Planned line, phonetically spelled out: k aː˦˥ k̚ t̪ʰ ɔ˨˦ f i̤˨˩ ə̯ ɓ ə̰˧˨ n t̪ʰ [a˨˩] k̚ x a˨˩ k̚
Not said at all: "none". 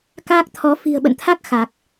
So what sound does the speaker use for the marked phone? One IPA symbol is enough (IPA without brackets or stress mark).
a˦˥